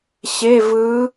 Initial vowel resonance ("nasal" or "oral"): oral